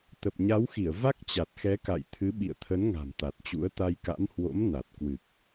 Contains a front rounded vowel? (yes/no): no